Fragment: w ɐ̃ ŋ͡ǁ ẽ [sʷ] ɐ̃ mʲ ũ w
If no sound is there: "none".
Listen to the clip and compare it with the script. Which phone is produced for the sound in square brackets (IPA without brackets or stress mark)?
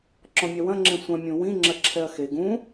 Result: sʷ